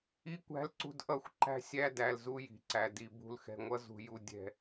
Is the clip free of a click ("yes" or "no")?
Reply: no